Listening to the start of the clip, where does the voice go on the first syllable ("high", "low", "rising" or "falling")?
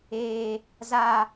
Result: high